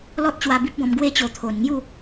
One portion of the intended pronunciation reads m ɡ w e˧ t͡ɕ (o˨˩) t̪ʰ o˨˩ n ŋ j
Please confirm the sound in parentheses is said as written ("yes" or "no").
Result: yes